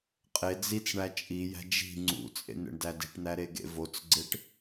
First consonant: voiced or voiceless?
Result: voiceless